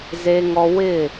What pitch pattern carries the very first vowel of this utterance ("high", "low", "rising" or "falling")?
high